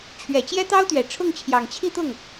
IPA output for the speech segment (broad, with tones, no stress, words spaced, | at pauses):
t͡ɕʰɥɛ˨˩t͡ɕjɛ˥t̪ɑ˥ʊ̯t̪ɥɛ˨˩ ʈ͡ʂʰʊ˥˩ŋt͡ɕʰjɑ˨˩ŋt͡ɕʰi˥˧t̪ʊ˥˩ŋ